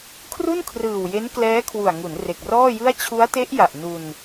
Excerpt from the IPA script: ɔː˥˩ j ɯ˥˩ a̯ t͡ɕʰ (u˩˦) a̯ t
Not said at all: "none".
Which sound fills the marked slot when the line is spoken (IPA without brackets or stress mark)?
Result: u˦˥